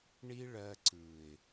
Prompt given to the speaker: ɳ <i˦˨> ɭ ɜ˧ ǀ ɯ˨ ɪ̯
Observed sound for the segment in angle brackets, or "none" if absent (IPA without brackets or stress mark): i˦